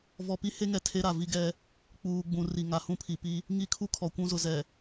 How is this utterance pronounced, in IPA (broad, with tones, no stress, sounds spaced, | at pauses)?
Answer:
v ɔ˨ p i˦ h e˦ ŋ ɛ˨ tʰ e˦ ɾ a˨ v i˦ ɡ ɛ˦ | k͡p uː˨ ɡ͡b ũ˨ r i˨ ŋ a˨ h ũ˦ pʰ i˨ p i˦ | ŋ i˦ kʰ u˦ kʰ ɔ˨ kʷ ũ˦ z ʊ˨ z ɛ˨